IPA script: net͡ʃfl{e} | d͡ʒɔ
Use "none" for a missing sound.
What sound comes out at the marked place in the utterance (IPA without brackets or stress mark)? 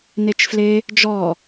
e